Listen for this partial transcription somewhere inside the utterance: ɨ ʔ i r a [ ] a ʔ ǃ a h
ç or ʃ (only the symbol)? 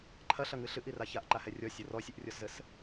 ç